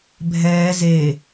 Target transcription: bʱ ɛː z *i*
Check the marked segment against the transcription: incorrect: e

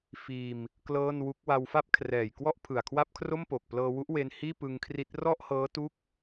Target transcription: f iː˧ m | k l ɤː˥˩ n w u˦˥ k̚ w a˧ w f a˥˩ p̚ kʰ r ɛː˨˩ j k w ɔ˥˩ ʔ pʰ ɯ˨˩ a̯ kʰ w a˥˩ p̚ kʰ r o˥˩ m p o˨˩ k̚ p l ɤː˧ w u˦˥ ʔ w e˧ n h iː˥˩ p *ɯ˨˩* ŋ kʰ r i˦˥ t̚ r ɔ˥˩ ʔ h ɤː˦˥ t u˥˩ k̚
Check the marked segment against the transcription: incorrect: ɯ˧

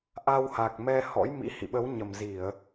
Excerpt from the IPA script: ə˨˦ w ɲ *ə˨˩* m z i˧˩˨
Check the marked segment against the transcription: correct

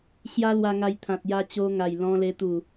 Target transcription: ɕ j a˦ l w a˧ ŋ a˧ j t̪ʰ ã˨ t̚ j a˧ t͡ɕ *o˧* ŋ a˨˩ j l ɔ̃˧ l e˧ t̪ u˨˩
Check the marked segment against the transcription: correct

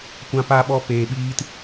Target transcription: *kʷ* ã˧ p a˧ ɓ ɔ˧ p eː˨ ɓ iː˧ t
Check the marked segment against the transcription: correct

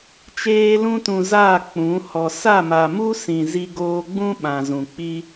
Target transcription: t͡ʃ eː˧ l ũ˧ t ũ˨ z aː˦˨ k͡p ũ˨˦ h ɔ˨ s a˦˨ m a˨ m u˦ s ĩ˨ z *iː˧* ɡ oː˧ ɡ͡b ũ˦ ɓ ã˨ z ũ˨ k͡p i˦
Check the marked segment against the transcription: incorrect: i˧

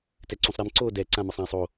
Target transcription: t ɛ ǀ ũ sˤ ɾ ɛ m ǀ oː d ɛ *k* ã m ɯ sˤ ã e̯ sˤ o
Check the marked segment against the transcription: incorrect: ǀ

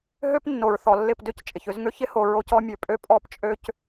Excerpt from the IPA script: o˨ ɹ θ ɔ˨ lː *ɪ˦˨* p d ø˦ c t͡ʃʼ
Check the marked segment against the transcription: correct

